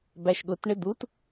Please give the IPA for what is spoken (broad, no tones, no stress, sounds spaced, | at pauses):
b æ ʃ ɠ ʊ t ɳ ɪ d̪ u t